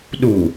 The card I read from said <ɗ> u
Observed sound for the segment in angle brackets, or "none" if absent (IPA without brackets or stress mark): ɗ